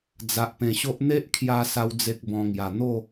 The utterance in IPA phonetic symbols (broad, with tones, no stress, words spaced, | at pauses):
d͡za˨ʔpẽ˨˩ɕo˦ʔ n̪e˦ʔkʰja˧ sa˦wd͡ze˦k̚bɔ̃˧ŋja˨˩ n̪o˥˧